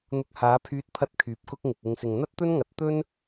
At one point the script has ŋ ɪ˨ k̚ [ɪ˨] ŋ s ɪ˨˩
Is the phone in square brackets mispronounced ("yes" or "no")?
no